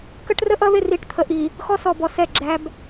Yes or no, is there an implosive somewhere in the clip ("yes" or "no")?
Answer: no